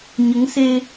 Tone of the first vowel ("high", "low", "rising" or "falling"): rising